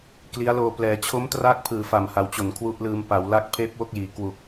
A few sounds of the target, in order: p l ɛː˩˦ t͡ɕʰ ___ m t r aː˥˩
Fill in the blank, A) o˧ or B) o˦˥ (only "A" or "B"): B